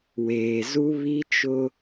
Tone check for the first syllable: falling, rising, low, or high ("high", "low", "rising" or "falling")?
low